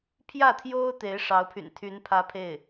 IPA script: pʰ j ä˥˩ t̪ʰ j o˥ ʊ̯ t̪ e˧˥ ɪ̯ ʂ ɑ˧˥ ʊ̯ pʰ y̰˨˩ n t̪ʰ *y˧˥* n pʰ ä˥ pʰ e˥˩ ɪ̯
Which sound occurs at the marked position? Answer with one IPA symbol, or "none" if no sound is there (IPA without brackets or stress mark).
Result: y˧˥